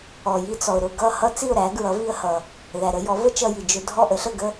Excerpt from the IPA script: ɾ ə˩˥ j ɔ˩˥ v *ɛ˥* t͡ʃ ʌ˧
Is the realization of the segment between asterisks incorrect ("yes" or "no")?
yes